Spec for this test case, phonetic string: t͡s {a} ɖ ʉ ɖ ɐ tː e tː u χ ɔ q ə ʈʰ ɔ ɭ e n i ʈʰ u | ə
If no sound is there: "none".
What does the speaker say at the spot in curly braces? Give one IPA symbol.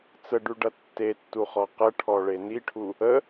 ə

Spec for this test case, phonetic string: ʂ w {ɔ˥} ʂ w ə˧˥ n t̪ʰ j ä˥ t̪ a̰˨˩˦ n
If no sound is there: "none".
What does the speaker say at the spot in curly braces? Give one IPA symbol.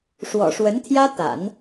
ɔ̰˨˩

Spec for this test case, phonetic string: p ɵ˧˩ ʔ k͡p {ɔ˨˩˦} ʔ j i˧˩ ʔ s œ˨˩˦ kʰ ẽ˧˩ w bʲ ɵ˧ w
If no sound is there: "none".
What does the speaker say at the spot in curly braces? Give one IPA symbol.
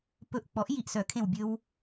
ɔ˨˩˦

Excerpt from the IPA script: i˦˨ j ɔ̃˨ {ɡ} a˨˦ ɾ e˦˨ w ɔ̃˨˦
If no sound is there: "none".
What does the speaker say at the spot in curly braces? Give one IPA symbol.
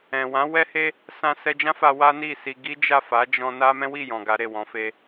ɡ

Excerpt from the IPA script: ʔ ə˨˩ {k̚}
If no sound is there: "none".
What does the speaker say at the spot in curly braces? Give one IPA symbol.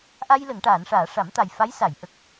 k̚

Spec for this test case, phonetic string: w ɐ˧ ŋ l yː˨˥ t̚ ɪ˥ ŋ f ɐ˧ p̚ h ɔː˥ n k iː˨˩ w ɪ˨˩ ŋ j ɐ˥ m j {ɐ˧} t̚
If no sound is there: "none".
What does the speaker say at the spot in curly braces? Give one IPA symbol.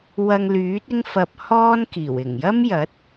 ɐ˨˥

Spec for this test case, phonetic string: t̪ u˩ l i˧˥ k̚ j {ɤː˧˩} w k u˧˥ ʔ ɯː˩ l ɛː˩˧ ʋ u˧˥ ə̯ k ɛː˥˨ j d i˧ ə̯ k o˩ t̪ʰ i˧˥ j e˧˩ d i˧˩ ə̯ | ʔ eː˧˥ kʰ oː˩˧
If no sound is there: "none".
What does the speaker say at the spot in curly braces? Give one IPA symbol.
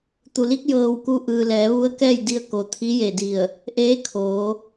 ɤː˧˩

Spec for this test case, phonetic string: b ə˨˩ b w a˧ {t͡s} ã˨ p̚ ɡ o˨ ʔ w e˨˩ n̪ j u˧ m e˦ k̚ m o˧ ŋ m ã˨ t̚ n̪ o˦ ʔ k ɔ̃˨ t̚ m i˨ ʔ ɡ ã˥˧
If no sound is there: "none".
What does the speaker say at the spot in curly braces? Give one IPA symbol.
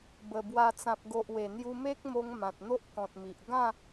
t͡s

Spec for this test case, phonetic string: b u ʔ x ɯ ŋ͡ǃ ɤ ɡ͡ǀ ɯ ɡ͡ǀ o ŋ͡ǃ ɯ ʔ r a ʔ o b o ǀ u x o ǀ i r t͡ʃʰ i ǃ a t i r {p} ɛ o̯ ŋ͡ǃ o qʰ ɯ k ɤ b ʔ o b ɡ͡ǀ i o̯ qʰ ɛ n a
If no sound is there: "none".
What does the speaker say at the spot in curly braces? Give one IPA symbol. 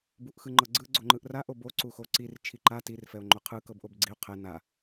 f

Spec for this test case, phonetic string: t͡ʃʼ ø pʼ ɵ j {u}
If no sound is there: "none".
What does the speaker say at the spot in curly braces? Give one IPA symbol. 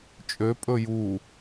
u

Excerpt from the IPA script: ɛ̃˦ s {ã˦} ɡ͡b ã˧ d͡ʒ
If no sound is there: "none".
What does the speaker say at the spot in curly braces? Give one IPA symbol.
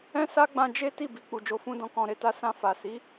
a˦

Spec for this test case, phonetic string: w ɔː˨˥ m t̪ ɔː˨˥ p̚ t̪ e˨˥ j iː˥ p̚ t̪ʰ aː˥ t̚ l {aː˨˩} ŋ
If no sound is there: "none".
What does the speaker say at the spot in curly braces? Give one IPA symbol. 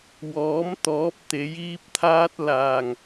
aː˨˩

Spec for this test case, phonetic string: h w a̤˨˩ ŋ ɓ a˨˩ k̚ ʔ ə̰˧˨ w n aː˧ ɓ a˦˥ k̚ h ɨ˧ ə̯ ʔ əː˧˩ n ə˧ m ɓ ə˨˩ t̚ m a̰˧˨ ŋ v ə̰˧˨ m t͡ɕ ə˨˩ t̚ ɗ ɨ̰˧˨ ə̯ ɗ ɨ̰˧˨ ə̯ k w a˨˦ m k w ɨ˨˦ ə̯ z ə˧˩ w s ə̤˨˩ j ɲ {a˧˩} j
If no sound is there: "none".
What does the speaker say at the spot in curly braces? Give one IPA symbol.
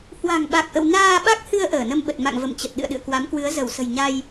a˧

